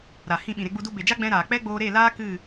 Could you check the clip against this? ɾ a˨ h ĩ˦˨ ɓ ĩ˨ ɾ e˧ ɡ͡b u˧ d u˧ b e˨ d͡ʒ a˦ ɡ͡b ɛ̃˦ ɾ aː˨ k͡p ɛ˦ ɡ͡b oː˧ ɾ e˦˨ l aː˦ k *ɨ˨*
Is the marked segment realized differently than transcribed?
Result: yes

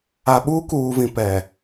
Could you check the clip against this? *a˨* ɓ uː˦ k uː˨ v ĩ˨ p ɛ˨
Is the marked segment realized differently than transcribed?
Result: no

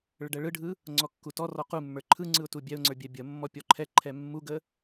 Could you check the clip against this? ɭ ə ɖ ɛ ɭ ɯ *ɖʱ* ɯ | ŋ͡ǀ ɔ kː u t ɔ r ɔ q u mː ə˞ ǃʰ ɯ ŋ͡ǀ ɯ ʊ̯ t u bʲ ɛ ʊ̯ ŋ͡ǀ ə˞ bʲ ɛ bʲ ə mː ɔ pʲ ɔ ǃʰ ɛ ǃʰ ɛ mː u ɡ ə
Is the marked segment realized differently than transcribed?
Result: no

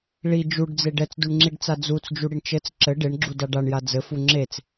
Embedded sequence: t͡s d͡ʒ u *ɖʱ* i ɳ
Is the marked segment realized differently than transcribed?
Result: yes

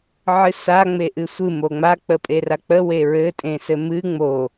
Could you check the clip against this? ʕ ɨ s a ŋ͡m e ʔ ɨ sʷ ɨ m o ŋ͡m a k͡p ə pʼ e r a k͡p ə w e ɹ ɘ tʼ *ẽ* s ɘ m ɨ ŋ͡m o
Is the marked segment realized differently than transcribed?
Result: no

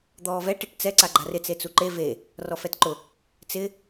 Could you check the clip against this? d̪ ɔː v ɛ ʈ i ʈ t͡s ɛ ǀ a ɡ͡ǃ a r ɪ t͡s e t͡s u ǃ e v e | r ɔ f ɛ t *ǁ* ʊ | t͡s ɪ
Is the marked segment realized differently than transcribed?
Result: yes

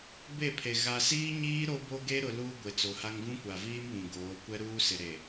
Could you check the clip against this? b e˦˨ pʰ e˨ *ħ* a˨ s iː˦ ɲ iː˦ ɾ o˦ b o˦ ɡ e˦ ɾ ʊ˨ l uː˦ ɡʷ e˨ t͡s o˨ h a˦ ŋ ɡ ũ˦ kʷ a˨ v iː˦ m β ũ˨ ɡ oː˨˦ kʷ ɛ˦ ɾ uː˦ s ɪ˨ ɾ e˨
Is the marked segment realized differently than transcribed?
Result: yes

